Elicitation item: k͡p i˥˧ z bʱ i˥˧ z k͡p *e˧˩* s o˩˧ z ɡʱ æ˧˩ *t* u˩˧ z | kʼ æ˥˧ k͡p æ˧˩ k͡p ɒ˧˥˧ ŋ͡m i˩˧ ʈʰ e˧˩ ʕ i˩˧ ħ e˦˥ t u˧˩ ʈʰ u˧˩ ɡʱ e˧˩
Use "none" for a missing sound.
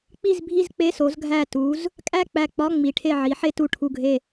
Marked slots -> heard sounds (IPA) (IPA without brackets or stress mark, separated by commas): e˧˥˧, t